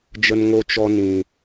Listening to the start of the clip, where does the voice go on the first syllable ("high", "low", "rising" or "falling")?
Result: high